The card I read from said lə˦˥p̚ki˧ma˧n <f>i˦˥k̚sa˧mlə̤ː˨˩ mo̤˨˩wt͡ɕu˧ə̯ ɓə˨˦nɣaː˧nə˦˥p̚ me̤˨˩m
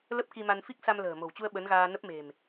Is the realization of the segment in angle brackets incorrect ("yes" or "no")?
no